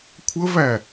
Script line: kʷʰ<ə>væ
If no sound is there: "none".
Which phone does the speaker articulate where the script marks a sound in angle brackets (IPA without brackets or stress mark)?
ə